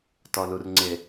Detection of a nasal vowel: absent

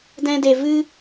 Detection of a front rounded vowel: absent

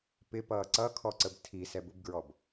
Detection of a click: present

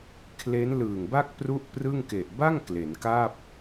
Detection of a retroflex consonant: absent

